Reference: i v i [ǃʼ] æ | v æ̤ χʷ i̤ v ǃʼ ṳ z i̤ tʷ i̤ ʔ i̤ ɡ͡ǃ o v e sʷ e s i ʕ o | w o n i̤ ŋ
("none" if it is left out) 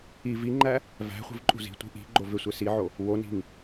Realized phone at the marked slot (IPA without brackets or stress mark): ŋ͡ǃ